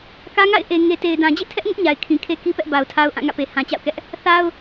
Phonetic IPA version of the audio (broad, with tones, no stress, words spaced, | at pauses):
kä˦ŋa̰˦˨ɪ̯ ʔe˨ ŋe˨te˨ɪ̯dã˨ d͡ʑḛ˦˨tʰɛ˦ʔŋʊ˦ʔ ɲa˨ɪ̯kʰĩ˨ kʰe˦ ki˦pɛ˦ʔ ba˨ʊ̯tʰa˦ʊ̯ ʔã˦˨ŋä̰˦˨pe˨ hã˨ t͡ɕa̰˦˨ʊ̯kɛ˦ʔ | θa˦ʊ̯